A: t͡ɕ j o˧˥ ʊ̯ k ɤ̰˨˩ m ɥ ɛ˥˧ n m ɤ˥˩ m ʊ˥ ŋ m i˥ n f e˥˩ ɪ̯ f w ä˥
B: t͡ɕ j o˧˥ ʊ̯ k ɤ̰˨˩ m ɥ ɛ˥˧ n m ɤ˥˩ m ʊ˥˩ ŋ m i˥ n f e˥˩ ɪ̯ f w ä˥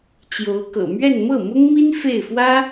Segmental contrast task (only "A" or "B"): A